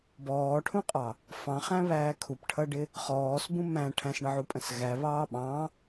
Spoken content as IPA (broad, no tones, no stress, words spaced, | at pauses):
bɔːʈʰũqʼɑ | fɑ̃χæ̃βæː kʰupʈʰʌɖɪ | χɔːsbũ mæ̃ ʈʰæ̃sɳəʕupʼə̃s ɣæβɑː ɓɑ̃